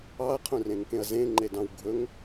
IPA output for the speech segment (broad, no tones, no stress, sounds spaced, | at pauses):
ɑ ɐ̯ qʰ ũ r ẽ ŋ k ẽ ɐ̯ z ẽ ŋ͡ǃ e d ɑ̃ w ɡʱ ɵ ŋ